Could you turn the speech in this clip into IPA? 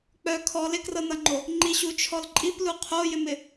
k͡pœ kʰɔ lɪkrɤnʌŋ͡ǃo | ŋ͡ǃiɕut͡ʃʰɔl ǃʼiplu qʰojɪmɪ

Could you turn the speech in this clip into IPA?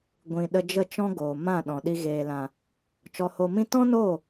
ɡʷĩ˨ ɗə˧d͡ʒə˦˨t͡ʃɔ̃˦ɡoː˨ mã˦˨ɗɔ̃˨ɗi˧ ɣeː˨lã˨ | t͡ʃɔ˧ho˧mĩ˦ tɔ̃˦noː˦˨

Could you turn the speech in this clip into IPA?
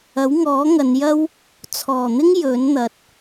ɐ˨˥wŋɔː˨˥ ŋɐ˨˧njɐ˥w | t͡sʰɔː˨˩n̪ɪ˥ŋ jɵ˨˥nn̪ɐ˨˥t̚

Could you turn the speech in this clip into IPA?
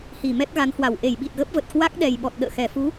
hi˧˩mɛ˦˥t̚ɣa˨˦nhwa˧˩w ʔe˧˩j ɓi˨˩t̚ɣə˦˥p̚və˨˩t̚ kwa˦˥k̚ɗɛ˨˩jɓɔ˨˩t̚ ɗə̰ː˧˨xɛ˨˩ fu˨˦

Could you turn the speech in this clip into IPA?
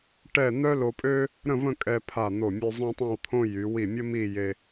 ʈɛ˥˧ n̪œ˥lo˧pʼø˥ | ɾə̃˥˧və̃˥˧ kʼɛ˧pʰa˧˩ n̪o˧˩mʲø˧ zˤõ˥tˤɛ̃˥˧wt̪ʰõ˥ jy˩˧ wi˧˩mʲə˥ mi˥˧je˧

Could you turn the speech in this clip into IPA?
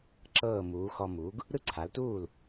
ǁɤː˥˩muː˩˥ xɔ˧mu˩˥ɡ | ɾɯ˥ǀʰa˩˥ltuː˥˩l

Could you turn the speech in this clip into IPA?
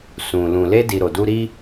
sũ˨ lũ˨le˧di˨ ɾo˨du˧ɾi˦

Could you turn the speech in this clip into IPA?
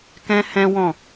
kɛ̃˦hɛ̃˦ wɔ̃˦˨

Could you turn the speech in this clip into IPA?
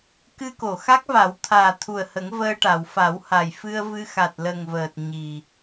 kɨ˧ko˨˩˨xa˦˥k̚va˨˩˦w t̪ʰaː˨˩t̪ʰu˨˩ə̯hə˨˩˦ŋ vəː˧ʈa˨˩˨w fa˨˩˦wha˨˩j fɨ˧ə̯vɨ˧ xa˨˩t̚lə˨˩ŋvəː˨˩t̚ ɲi˨˩

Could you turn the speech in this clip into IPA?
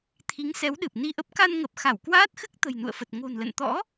t̪ʰi˨˦ŋsɛ˨˦wɗɨ˨˩p̚ ni˧ʔə˦˥p̚ ka˧nŋə˨˩p̚ xa˧˩wkwaː˦˥t̚xɨ˦˥k̚ t̪ə̤˨˩jnṵ˧˨ə̯fə˨˩t̚ ŋo̤˨˩nlə̰˧˨n t̪ɔ̰˧˥

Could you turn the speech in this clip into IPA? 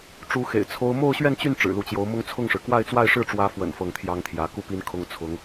ʈ͡ʂu˧˥xḛ˨˩ɪ̯ t͡sʰo˥ʊ̯ mo˥˧ʊ̯ɕɥɛ˥˧nt͡ɕy˥˩n ʈ͡ʂɻ̩˨˩lu˧˥t͡ɕjo˧˥ʊ̯mʊ˥ŋ t͡sʰʊ˥˩ŋʂɻ̩˩ kwa˥˧ɪ̯t͡swa˥˧ɪ̯ ʂɻ̩˥˩ʈ͡ʂwä˧˥fwə̰˨˩n fɤ˥˩ŋt̪ʰjɑ˥ŋt̪ʰjä˧˥ ku˥˩pi˥n kʰʊ˥ŋt͡sʰʊ˧˥ŋ

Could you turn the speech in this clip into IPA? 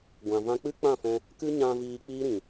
ɡʷã˨vã˧k͡pɨ˦ k͡pã˦˨fɛ̃˧ | kɨ˦ɲã˧ viː˧k͡piː˦ɾĩ˨

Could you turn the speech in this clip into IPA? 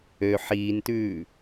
ø ħiːntʉː

